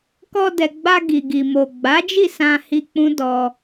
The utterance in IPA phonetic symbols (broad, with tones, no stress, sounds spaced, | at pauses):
k ɔ˧ d ɛ˨ ɡ͡b a˧ ɡ i˨ ɡ i˨ m o˨ ɡ͡b a˨˦ d͡ʒ i˦˨ s ã˧ h i˧ k͡p ũ˦ d ɔ˧